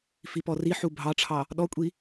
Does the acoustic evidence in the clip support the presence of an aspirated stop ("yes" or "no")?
yes